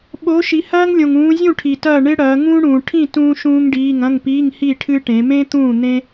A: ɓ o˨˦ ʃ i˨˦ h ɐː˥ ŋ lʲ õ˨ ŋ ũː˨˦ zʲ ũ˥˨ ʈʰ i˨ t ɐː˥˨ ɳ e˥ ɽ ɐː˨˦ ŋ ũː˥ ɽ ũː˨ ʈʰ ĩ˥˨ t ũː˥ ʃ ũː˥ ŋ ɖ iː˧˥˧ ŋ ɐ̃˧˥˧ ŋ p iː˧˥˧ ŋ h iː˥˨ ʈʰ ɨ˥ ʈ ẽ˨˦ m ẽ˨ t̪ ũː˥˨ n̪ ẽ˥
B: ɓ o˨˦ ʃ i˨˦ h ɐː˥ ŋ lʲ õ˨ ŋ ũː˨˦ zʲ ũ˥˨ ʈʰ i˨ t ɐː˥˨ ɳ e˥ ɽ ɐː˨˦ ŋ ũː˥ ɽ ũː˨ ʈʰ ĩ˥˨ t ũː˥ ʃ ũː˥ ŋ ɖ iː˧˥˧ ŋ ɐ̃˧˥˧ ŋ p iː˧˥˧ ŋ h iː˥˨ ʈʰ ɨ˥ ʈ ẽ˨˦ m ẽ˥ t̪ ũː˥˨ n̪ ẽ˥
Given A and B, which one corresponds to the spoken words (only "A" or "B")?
B